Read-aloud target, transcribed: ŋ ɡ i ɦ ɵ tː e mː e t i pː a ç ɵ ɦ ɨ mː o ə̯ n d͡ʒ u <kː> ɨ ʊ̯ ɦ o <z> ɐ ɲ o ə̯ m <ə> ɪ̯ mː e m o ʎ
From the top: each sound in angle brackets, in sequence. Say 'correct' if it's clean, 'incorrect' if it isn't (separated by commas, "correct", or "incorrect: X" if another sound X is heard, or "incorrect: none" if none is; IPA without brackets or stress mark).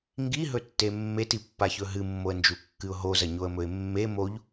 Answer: correct, correct, incorrect: ɵ